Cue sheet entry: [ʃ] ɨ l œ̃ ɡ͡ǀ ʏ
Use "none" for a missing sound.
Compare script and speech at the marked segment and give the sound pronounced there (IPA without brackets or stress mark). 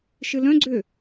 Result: ʃ